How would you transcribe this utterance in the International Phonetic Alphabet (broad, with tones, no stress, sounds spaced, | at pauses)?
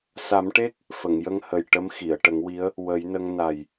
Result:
s a˨˩˦ m ʈ e˦˥ k̚ | f ə˨˩˨ ŋ j ə˧ ŋ h ə˨˩ j ʈ ə˧˥ m x i˨˩˨ ə̯ ʈ ə˨˩˦ ŋ w i˧˥ ə̯ | w ə˨˩˦ j n ə˧ ŋ n a˨˩ j